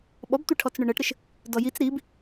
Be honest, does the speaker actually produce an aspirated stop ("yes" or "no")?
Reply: yes